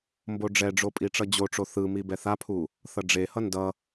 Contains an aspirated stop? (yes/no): yes